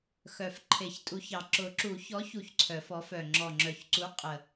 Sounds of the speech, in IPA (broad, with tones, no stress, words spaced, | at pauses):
xœ˨˩f ǃʰe˨˩˦çtʼu˨˥çɑ˨˩ ǁʊ˨˩˦ǁu˨˩˦çɔ˨˥çu˨˩ç ǀʰœ˨˩˦fɔ˨˥fœ˨˩ ŋ͡ǁɔ˨˩ŋ͡ǁœ˨˩çǀu˨˥ qʼə˨˩